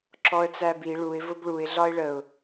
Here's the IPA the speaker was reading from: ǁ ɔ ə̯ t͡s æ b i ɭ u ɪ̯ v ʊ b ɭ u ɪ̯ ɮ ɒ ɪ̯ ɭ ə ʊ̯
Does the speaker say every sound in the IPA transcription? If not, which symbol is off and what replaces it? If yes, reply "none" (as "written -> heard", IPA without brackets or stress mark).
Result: none